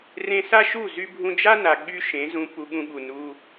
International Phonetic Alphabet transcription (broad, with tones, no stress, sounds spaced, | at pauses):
r ẽ˧ s a˦ ʃ u˦˨ z y˧ bʱ ũ˧ d͡ʒ a˦ n a˨ ɠ y˦ ʃ ẽ˨˦ z ũ˧ p u˧ ɠ ũ˧ ɠ u˨ n u˧